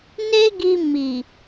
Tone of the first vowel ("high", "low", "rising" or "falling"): high